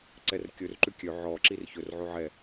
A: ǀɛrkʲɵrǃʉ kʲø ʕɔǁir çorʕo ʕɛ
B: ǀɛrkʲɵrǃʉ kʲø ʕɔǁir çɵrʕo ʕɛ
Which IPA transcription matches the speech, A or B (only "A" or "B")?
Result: B